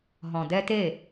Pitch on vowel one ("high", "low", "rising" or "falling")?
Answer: low